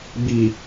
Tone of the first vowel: low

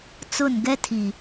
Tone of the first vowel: falling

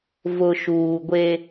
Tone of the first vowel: low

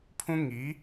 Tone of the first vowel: high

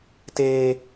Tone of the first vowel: high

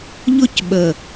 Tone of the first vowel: high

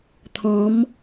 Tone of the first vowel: rising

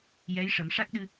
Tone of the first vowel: rising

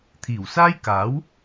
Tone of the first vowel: low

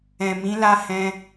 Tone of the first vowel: low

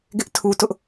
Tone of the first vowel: high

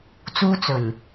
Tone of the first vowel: high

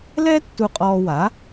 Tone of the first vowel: high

